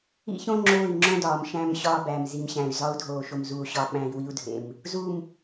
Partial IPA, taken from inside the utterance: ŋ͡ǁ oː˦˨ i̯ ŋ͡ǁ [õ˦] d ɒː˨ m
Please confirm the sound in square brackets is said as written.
yes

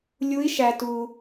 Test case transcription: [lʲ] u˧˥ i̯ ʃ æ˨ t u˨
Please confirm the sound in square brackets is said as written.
yes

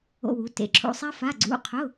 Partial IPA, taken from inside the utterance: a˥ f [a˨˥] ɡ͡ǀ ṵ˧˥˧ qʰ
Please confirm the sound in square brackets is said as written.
no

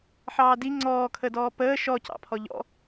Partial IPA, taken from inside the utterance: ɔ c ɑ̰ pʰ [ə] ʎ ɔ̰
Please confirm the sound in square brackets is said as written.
no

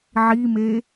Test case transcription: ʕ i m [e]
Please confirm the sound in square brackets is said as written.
yes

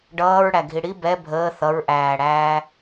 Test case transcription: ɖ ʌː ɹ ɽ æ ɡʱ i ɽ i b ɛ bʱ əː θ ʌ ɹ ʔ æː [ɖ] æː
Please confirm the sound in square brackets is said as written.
no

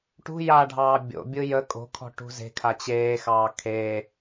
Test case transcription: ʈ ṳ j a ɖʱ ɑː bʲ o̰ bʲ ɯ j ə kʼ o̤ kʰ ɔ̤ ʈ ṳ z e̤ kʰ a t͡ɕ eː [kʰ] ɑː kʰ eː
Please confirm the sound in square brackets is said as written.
no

